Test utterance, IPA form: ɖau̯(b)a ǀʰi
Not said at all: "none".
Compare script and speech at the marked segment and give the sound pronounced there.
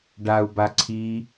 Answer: b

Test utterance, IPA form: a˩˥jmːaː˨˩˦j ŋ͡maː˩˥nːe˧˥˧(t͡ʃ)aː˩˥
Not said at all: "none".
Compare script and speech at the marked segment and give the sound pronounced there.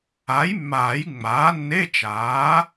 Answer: t͡ʃ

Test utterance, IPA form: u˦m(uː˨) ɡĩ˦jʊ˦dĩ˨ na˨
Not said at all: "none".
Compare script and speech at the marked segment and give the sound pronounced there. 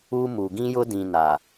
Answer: u˨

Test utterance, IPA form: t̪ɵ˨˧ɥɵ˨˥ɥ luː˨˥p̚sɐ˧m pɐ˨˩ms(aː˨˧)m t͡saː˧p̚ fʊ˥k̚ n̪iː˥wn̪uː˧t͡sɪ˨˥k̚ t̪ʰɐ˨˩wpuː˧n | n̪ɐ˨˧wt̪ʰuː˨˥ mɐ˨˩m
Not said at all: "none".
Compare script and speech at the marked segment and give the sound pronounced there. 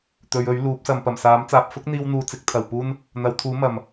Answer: aː˨˥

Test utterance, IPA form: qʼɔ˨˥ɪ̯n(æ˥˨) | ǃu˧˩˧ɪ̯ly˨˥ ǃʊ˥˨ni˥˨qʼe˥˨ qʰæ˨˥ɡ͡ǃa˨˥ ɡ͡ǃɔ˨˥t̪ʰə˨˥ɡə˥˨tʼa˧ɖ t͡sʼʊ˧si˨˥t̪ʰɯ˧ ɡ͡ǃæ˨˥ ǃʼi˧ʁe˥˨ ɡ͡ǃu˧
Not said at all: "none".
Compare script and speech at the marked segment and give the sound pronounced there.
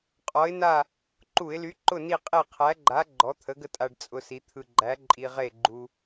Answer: a˥˨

